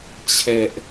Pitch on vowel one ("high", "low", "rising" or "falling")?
high